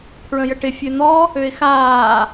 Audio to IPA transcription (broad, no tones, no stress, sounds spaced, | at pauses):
pʰ ɹ ə̃ j ə ʈ ɪ fʲ ø n̪ ɔ | ø ɪ̯ x aː